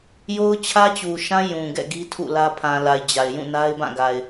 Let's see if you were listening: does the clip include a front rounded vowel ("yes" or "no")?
no